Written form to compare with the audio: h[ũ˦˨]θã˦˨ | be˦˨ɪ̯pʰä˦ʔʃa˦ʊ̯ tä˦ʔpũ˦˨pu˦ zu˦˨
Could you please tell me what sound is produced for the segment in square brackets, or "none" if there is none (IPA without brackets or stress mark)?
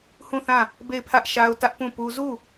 ũ˦˨